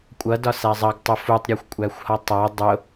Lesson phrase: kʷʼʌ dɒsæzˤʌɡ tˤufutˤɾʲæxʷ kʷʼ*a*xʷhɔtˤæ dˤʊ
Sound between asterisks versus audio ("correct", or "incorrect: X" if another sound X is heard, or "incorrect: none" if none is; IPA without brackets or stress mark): incorrect: æ